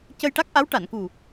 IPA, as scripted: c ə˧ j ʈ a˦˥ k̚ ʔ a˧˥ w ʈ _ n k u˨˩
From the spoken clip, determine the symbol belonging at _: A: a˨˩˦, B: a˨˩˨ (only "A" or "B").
B